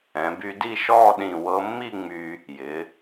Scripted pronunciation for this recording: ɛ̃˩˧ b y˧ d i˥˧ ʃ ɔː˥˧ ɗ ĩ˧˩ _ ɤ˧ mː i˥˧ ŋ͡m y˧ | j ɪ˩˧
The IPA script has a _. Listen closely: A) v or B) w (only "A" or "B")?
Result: B